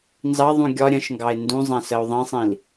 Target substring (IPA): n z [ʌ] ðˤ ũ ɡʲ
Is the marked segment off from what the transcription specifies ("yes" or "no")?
yes